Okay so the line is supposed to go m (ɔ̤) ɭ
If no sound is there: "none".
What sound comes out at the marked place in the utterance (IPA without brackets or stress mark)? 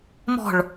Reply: ɔ̤